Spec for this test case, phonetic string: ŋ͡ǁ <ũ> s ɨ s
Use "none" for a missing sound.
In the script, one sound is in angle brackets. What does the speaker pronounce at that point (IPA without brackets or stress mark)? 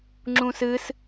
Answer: ũ